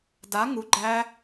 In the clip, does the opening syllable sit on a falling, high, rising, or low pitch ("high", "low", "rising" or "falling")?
rising